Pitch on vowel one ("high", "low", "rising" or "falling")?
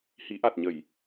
rising